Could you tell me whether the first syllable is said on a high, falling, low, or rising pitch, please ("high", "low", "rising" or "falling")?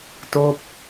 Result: falling